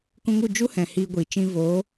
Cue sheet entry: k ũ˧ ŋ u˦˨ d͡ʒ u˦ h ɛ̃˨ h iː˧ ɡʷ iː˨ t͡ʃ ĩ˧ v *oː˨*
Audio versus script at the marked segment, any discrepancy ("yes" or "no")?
yes